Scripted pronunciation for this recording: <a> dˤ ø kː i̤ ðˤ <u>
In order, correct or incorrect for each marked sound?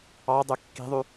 incorrect, incorrect

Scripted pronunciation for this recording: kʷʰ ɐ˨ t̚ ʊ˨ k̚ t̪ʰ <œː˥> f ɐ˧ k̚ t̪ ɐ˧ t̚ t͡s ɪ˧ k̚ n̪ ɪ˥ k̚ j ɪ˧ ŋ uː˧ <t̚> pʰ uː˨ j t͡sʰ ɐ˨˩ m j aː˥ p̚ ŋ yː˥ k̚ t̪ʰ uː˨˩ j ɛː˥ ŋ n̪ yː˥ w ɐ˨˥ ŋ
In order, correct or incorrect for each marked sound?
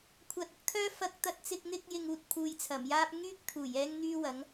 correct, correct

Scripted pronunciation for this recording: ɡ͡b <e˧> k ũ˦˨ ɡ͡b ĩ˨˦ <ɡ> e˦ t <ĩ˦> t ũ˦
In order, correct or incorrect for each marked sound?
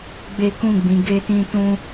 incorrect, correct, correct

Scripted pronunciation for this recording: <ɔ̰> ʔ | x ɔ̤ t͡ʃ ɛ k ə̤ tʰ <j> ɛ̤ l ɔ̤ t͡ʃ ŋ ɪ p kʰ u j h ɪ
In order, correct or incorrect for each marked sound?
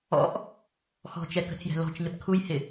correct, correct

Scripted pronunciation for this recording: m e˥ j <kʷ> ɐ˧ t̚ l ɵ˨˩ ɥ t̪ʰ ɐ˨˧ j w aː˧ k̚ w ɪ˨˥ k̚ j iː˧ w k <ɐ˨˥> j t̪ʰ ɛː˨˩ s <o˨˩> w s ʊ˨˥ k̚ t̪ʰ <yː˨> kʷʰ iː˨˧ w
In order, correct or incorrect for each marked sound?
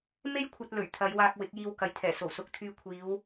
incorrect, correct, correct, incorrect

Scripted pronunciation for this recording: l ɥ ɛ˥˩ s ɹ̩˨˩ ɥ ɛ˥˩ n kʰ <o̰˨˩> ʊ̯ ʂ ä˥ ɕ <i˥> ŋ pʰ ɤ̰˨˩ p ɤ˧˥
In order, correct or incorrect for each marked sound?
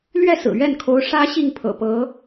incorrect, incorrect

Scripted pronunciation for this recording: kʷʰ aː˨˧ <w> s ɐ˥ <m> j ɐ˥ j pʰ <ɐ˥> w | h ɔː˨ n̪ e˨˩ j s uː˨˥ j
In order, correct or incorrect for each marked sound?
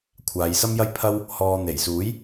incorrect, correct, correct

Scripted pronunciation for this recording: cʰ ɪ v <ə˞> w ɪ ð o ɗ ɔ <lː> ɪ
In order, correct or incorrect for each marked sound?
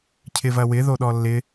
incorrect, correct

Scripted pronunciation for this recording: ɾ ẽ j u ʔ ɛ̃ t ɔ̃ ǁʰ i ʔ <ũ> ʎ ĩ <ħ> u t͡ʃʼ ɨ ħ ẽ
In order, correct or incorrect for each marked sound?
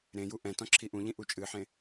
correct, incorrect

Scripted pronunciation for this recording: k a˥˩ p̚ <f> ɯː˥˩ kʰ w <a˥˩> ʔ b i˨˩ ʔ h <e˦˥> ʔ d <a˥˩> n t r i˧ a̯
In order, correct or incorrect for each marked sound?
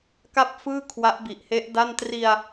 correct, incorrect, correct, correct

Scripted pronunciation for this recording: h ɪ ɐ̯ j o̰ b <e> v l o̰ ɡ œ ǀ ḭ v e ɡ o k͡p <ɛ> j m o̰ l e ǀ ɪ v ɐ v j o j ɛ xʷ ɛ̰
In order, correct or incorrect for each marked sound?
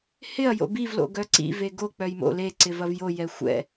incorrect, incorrect

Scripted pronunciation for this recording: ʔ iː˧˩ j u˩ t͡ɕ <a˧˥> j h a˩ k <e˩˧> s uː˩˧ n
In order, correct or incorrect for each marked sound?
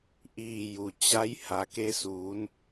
correct, incorrect

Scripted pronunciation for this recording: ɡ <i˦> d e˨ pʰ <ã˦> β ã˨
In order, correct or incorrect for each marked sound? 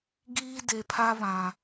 incorrect, incorrect

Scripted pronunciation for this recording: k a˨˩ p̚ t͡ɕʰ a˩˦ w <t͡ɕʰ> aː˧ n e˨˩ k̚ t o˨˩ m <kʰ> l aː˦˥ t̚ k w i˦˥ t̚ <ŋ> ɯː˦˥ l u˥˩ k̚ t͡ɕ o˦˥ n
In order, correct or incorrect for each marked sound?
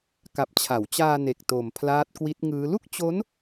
incorrect, incorrect, correct

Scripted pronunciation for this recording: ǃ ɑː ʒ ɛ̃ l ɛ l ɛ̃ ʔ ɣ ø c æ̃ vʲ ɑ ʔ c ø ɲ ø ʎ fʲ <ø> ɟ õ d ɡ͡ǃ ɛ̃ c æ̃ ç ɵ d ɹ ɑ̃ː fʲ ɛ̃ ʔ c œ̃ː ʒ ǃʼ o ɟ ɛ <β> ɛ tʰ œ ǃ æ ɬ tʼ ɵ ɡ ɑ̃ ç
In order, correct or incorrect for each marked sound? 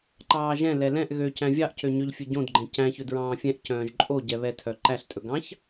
incorrect, correct

